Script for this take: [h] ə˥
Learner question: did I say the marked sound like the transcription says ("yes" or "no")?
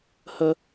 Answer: yes